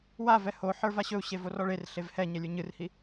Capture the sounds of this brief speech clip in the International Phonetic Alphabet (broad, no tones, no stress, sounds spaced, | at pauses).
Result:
w a v ɛ h o ħ ə˞ v a ɕ ɵ u̯ ɕ e v o r ɔ ɭ e r ɬ e v h ɛ ɲ ɛ lʲ ə˞ ɲ ɨ r h i